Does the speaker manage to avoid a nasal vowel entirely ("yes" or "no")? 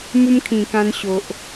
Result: no